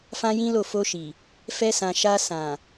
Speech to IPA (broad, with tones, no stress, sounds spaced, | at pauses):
f ã˦ j ĩ˦ l o˦˨ f o˧ ʃ i˨ | f ɛ˧ s ã˨ ʃ a˧ s ã˨